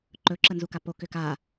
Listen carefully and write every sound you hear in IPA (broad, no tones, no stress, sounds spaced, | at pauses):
ǃ ɵ ǁ ə n z u k a p o k ʏ k a